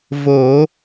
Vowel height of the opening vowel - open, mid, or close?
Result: mid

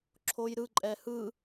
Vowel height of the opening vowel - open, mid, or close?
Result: mid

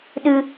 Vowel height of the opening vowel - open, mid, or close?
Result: close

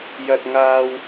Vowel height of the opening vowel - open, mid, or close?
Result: open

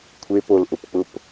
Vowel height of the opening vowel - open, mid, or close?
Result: mid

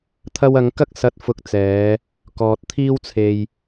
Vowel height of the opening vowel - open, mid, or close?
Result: open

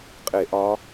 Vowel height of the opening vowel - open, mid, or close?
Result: mid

